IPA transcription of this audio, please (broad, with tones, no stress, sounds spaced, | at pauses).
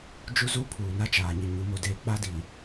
d͡ʒ u˦ z u˦ pʰ uː˨ n a˦ t͡ʃ aː˨ ɲ ɪ˨ ɲ u˨ m o˨ d eː˨ k͡p a˦ d i˨